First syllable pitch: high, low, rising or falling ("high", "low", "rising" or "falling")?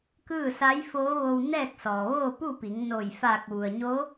falling